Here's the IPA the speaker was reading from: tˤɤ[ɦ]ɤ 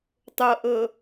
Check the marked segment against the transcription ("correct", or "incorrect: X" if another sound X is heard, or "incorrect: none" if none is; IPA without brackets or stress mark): incorrect: ʔ